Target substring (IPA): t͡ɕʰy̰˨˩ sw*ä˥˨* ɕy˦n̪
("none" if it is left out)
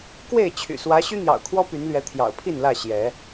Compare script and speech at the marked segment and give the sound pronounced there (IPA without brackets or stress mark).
ä˨˦